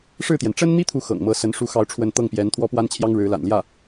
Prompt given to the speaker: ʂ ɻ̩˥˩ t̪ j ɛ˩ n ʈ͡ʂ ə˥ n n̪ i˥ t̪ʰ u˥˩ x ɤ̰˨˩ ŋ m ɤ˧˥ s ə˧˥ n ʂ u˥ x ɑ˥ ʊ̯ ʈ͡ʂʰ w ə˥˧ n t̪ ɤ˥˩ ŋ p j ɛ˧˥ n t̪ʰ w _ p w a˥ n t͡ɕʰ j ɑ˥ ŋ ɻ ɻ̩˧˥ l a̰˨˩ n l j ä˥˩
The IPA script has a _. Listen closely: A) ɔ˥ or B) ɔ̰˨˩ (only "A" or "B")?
A